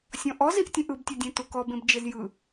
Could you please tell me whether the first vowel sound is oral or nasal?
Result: nasal